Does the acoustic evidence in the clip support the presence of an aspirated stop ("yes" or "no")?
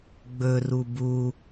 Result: no